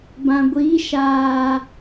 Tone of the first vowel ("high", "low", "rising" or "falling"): low